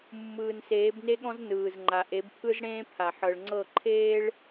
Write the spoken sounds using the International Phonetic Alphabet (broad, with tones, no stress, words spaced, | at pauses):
mːɯː˨nseː˨˦bne˦ɠɔ̃˦z nɯː˨zŋ͡ǃa˨ ʔe˨˦bpʰɯ˦zɽẽː˦pʰa˨ ħɤ˨ɭŋ͡ǀɤ˦˨ǃʰeː˦ɭ